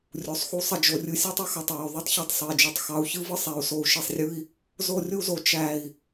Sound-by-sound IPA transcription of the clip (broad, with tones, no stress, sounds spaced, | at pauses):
rʲ u˨ sˤ x u˦ sˤ ə˧ d͡ʒ o˧ rʲ ɯ˦ sʲ ɔ˦ tˤ u˦ x ɑ˨ tˤ ɹ ə˨ u̯ ðˤ u˦ tˤ ç ɔ˧ tˤ sˤ ɯ˨ i̯ d͡ʒ o˨ tˤ x ɑ˧ u̯ ç ɯ˦ v ɯ˦ sˤ ɛ˨˦ u̯ s o˧ u̯ ʃ i˧ sˤ rʲ ɯ˦ i̯ | z o˧ rʲ u˧ z o˨ t͡ʃ æ˨ i̯